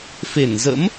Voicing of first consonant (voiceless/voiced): voiceless